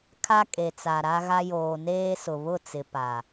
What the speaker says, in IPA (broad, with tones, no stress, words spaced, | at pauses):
kʰa˦kʼe˨t͡sa˨ ɾa˦ɣa˦ joː˨neː˦ sʊ˨βʊ˦˨t͡sɪ˨pa˨